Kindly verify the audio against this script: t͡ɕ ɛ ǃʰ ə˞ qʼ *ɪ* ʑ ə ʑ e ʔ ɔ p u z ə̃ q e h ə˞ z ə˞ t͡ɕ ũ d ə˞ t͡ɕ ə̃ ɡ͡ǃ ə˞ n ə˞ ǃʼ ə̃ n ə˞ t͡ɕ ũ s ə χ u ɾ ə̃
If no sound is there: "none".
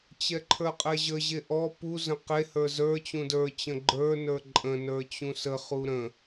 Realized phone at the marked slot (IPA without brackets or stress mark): ɛ